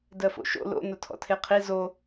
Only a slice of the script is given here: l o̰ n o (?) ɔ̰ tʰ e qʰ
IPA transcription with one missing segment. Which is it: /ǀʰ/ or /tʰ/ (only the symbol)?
tʰ